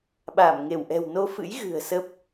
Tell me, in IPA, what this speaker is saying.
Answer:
ɓ aː˧˩ m ŋ e˧˩ w ʔ ɛ̤˨˩ w n o˧ f ɨ̰˧˥ j ɣ ɨ̤˨˩ ə̯ s ə˦˥ p̚

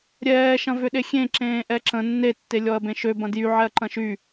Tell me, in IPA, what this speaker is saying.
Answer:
ɾʲ ɛː ʃ ɐ̃ v ʏ ɗ e xʲ ẽ ǁ ẽː ʔ ɛ ǁ ə̃ nː e tː e lʲ ɔ ɐ̯ b ẽ ʃ ø b ɐ̃ d j y ʕ ɛ ɐ̯ ǃ ɐ̃ ʃ y

